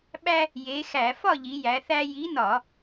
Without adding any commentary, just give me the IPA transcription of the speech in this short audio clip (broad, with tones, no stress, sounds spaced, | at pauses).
ɓ æ˦ | j e˨˥ x æ˧˩˧ f ɒ˥˨ ʎ i˩˧ j æ˩˧ θ æ˦ j i˨˥ n ɒ˧˩˧